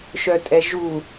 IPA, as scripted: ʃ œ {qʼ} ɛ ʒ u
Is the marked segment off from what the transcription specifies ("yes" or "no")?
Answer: yes